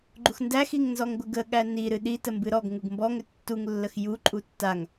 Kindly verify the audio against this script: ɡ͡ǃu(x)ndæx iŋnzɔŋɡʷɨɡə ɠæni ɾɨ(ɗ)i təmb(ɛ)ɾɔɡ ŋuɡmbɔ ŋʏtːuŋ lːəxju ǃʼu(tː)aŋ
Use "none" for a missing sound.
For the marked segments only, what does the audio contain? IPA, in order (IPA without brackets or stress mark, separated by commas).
x, ɗ, ɨ, tː